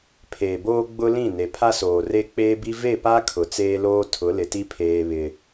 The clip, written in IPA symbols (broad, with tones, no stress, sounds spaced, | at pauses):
pʰ eː˨ b oː˦ ɡ͡b ʊ˦ l ĩ˦˨ n e˨ pʰ a˦ s oː˨ r e˦ k͡p eː˦ b i˦ v e˦˨ p a˦ kʰ ʊ˨ t͡s eː˦ l oː˦ tʰ ʊ˨˦ l ɪ˨ t i˦ pʰ eː˦ β ɪ˦